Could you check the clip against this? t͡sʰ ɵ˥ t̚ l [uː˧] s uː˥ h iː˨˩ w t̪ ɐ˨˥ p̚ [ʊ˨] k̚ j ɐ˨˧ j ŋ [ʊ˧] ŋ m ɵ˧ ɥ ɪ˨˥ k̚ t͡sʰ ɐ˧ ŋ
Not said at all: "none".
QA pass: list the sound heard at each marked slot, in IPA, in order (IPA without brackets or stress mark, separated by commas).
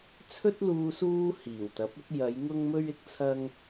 uː˧, ʊ˥, ʊ˧